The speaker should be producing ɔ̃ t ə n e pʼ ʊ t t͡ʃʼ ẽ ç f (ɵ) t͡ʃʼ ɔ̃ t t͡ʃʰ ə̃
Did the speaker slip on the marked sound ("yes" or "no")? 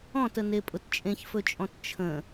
no